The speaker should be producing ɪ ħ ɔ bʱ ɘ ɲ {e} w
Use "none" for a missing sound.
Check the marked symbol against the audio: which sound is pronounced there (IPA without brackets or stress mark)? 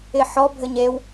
e